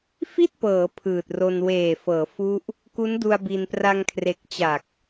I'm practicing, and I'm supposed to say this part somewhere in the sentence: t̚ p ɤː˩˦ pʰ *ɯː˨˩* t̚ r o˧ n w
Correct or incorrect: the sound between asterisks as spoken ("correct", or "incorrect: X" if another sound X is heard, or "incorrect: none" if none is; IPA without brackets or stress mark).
correct